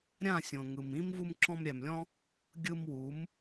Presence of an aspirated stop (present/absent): absent